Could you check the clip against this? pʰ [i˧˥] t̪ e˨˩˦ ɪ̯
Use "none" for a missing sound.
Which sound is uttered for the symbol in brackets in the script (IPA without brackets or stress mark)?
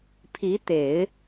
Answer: i˧˥